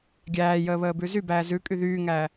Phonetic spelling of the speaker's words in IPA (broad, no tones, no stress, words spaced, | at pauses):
ɡʲæːjəːβəːbʉ zybæː zʉkʼy ðyːŋæː